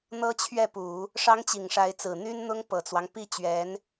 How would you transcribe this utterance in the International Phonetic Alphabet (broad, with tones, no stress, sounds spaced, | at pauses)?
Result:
n̪ ɤ˥ t͡ɕʰ ɥ ɛ˥˩ p u˨˩˦ | ʂ ɑ˥ ŋ t͡ɕ i˨˩ ŋ ʂ a˧˥ ɪ̯ t͡s ɹ̩˨˩ n̪ y˥ n n̪ ʊ˥ ŋ p ɤ˨˩ t͡s w ɑ˦ ŋ p i˥˩ t͡ɕ ɥ ɛ˧˥ n